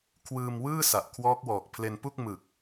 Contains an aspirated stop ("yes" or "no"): yes